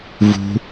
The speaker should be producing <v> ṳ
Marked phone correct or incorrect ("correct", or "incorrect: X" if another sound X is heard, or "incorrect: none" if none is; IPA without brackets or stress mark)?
correct